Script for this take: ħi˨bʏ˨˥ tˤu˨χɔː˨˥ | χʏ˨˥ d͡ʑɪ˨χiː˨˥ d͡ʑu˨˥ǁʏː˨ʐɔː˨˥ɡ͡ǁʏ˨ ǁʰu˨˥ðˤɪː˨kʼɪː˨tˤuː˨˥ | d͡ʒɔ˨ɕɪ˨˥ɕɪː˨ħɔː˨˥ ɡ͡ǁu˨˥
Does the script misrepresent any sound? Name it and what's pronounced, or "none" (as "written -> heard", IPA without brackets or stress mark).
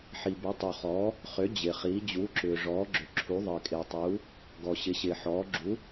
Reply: d͡ʒ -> ɡ